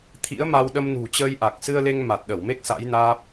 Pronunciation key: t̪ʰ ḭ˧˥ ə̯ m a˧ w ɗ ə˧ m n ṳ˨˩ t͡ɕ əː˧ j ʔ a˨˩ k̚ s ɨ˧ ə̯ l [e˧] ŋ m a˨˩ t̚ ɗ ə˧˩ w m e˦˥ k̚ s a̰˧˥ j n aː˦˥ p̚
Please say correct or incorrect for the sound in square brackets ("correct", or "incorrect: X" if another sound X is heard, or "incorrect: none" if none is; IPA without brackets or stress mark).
correct